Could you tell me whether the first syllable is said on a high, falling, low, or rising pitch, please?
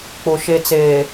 low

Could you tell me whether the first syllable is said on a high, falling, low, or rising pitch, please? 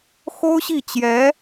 high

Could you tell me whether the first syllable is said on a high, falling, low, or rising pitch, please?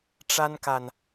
high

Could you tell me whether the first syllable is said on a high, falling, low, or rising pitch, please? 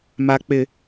low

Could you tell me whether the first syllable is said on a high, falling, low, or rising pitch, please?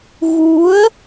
rising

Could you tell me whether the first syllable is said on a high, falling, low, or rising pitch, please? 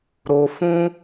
high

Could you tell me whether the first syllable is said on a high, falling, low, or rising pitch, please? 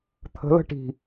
rising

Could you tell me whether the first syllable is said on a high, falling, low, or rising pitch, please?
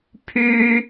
high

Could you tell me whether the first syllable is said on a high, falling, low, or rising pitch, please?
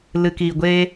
low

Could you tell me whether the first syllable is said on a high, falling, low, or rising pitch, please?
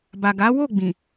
low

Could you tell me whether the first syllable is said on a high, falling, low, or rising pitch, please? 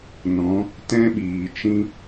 rising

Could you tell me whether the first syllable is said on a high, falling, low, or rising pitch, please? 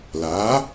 rising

